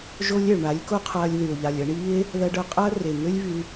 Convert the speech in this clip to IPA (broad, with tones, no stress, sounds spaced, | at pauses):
ʒ o˦ lʲ ɛ˨ ɭ ɳ a˨˦ lʲ k o˦ qʰ ɐː˧ lʲ ð y˨ o̯ ʎ a˨ lʲ ɐ˧ ɳ iː˦ e̯ | ð ɐ˧ ɖ œ˧ qʼ ɐː˦ r e˨ ŋ ø˦ lʲ v y˧